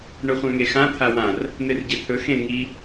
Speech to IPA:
ɳ ɵ χʷ ã ŋ e x ã t̪ʰ a w ã r | n̪ e r ɟ e t̪ʰ ɵ x ẽ ŋ i

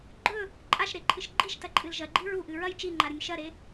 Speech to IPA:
ɡ͡ǃ ɵ | ǃʼ a ʃ ɾ e ǃʰ ɨ ʃ ɡ͡ǃ i ʃ t ɐ ǃʼ ɨ l ʒ ɐ ɡ͡ǃ i ɹ u ʔ ɨ ɹ ɐ j t͡ʃ i ŋ͡ǃ a ɾ ɨ nʲ ʃ ɐ ɾ e

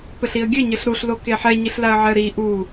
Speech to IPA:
p ɘ ɬ i ə̯ ɡʲ ɘ ɲ ɘ ɬ ɾ u ɬ l o k e ħ ɛ ɲ i ɬ l a ə̯ ʕ ɛ ə̯ ɾ i ʔ u

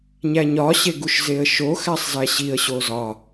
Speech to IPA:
ɲ æ ɲ ɒ ɕ e ɡ u ʃ z e ə̯ ʃ o x æ sˤ z æ ɕ i ə̯ ɕ o z ɒ

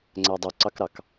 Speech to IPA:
ŋ͡ǀ æ dˤ u ǀ ɑ k ɾ ɑ k

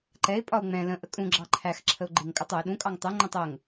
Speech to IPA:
ǃ ɛ ɪ̯ pʼ ɒ ʊ̯ ŋ͡m ɛ̃ l ə̃ ʔ ə kʼ ũ ɡ͡ǁ ɑ ǃʰ æ x ǁʰ ə ʊ̯ ɡ͡ǃ ɪ ŋ kʼ ʌ tˤ ʊ ɪ̯ ɗ ũ kʼ ɑ ŋ tˤ u ŋ͡ǃ ə̃ tˤ ə ŋ

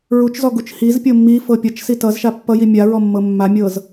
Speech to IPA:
ɹ u t͡ʃ z ɔ ɡ u t͡ʃ h i z pʲ ɤ mː i f ɤ pʲ ʌ t͡ʃ s i t ʌ z ʃ a pː ʌ j i mʲ a ɹ ɔ mː ɤ mː a mʲ ɤ z

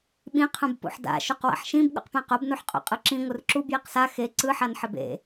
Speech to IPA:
ɓ ĩ qʰ ũ b p ṵ ħ d a̰ ʃ u q w a̰ ħ ʃ ĩ b ɠ ṵ q p ẽ q o b n u ħ qʼ o̰ qʼ ɯ ǁ ĩ ŋʷ ɯ r ǁ u b j i q s a x e ǀ ɯ ħ a n ħ ɪ b ḛ

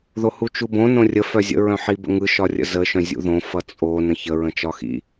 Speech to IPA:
ð o h u t͡ʃ u b õ n õ rʲ ə f œ zʲ ə̰ ɹ œ̃ ħ i b ə̰ ŋ ɯ ʃ ɒ rʲ ə̰ z ə ʃ œ̃ zʲ ṵ ð õ f ʌ t͡sʼ o n ə̃ ç ə ɹ ə̃ t͡ʃ ɒ x ḭ

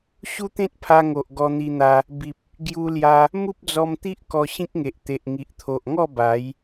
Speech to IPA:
ɕ u˦ t̪ ẽ˦ t̚ pʰ a˧ ŋ o˨ ʔ ɡ ɔ˧ n̪ i˧ n̪ a˧ | b i˨ p̚ | ɡ j u˧ l j a˧ | m u˦ p̚ d͡z ɔ˧ m t̪ i˦ ʔ k ɔ˧ ɕ ĩ˦ k̚ ŋ e˨ ʔ t̪ e˨ ʔ ŋ i˨ ʔ t̪ʰ o˨ ʔ ŋ ɔ˥˧ b a˨˦ j

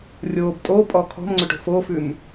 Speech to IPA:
rʲ oː b tʼ o pʼ ɔ kʰ ɔ̤ m ŋ͡ǀ ɵ ʈ o̤ f o f ʉ m

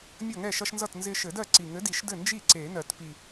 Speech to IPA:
mʲ ʌ˥˩ ŋ ɛ˥˩ ʃ ʌ˦ ʃ n z ʌ˥˩ t n z ɪ˦ ʃ ɘ˨˩˦ d ɜ˥˩ ǀ i˨˩ ŋ ɘ˨˥ d i˨˩˦ ʃ d ɘ˥˩ n d͡ʒ i˥˩ ǀ e˨˩˦ n ɜ˨˩˦ t p i˨˩

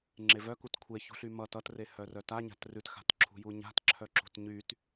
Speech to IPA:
ŋ͡ǁ e v œ k u t kʷʰ e ç ṳ ɬ y m ʌ t ʌ t r e h œ r œ t a ɲ a̤ t r ʉ t x a̤ t ǁʰ ṳ j u ɲ a̤ t ǁʰ œ ǁ ṳ t ɲ y t

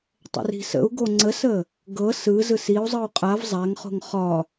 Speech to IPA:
tˤ ə̰ r i̤ s ə̰ u̯ ɡ o ŋ͡ǀ ə s ə | ɡ ɤ s ɯ z ɯ s i u̯ zˤ ɯ u̯ qʼ a v zˤ a ŋ χ o̤ ŋ χ ɒ

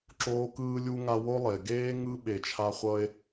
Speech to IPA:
ǁ oː˧ k ɯː˧ lʲ u˧ ŋ a˧ w o˦ lˠ e˨ ɡ eː˦ ŋ ɯ˦ ɓ e˨ t͡ʃʰ a˧ χʷ ʌ˧ e̯

